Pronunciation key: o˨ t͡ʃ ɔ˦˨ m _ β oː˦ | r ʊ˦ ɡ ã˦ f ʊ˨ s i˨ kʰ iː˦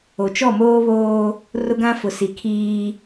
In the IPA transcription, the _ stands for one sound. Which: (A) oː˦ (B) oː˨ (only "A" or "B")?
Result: A